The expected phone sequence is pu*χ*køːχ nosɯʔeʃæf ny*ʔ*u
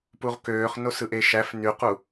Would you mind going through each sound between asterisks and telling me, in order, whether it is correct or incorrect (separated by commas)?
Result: incorrect, incorrect